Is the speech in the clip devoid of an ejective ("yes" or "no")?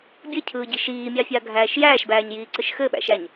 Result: yes